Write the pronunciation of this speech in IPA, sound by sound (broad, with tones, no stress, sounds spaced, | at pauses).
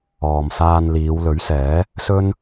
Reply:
ɔː˨ m s aː˧ n l iː˨˧ w l ɵ˨˥ ɥ s ɛː˨˥ | s ɵ˥ n